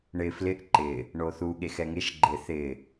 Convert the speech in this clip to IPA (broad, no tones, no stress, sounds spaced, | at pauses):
ɳ ɪ f l ɪ ʔ ǃ ɪ | ɳ o θ u ɠ e x ɛ ŋ e ʃ ɡ͡ǃ ɪ θ ɪ